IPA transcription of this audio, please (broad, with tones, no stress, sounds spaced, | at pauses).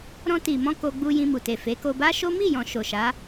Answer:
ɾ ɔ̃˧ t i˨ m ɔ̃˧ k o˧ ɡ͡b u˧ j ĩ˧ m u˨ t e˨ f e˨˦ k o˧ b a˦ ʃ o˦ m i˦˨ j ɔ̃˨ ʃ o˨ ʃ a˨˦